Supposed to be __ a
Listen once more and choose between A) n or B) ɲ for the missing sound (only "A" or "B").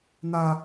A